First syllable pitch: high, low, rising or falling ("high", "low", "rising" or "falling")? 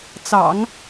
low